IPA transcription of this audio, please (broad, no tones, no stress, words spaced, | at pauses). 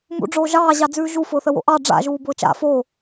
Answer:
mṵɖ͡ʐoː ʒɑːʑɑd͡zʉː ʒufʊːθəwo̰ ʔɑ ɖ͡ʐa̰ʒuːbʊː t͡ʃa̰ foː